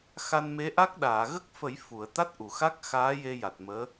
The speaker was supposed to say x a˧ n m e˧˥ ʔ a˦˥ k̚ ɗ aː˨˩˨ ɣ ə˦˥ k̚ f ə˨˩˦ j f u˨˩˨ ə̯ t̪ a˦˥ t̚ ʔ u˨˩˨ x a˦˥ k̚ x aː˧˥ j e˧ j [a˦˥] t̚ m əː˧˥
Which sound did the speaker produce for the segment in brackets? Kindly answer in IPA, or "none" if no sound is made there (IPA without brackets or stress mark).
a˨˩